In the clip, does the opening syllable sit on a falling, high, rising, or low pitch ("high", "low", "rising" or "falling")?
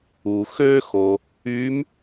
low